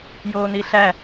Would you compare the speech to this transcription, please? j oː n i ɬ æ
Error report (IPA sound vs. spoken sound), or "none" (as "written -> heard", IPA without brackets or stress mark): none